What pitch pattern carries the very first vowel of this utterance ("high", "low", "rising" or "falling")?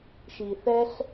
low